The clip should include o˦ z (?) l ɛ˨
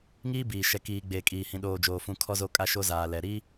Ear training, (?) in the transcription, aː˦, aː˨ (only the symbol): aː˨